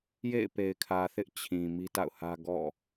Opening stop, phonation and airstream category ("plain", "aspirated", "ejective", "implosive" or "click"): plain